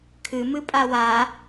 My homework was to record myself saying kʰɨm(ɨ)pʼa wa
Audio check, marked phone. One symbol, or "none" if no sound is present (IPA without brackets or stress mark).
ɨ